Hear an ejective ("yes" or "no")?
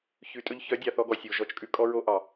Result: yes